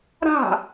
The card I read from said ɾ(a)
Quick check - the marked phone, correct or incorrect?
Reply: incorrect